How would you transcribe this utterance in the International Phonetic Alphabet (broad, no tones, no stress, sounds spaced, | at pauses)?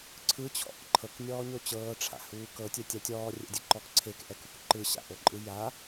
ǀʰ ɯ t͡ɕʰ ɔ̰ k ǃʰ ɤ k nʲ ɔː ɲ o t͡ɕ ɤː ʈ͡ʂʰ a̰ h uː k ɤ tʲ ɛ tʲ a tʲ ɔː rʲ ɛ̰ dʲ ɛ ǃ ɔ k ǀʰ e k ʔ ɛ k u k ǃ ɯ ɕ a̰ ʔ o ǃʼ ɯ j a